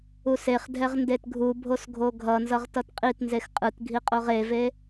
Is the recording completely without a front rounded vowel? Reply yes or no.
yes